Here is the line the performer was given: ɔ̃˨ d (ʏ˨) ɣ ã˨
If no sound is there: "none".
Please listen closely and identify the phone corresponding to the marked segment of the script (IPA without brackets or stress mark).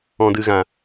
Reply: ɨ˨